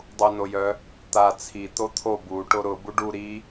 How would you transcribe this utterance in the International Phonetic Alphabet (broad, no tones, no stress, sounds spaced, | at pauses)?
dˤ u n o j œ | t̪ a t͡sʰ i t̪ o t̪ʰ o b u ʈ o ɾ ʊ b u ɖ u ɾ i